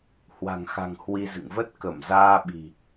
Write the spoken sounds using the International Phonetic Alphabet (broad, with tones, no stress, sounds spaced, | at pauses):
h w a̤˨˩ ŋ x a̤˨˩ ŋ h w i˧ z ɨ̰˧˨ ŋ v ə˦˥ t̚ k ə˧˩ m z aː˧ ɓ i̤˨˩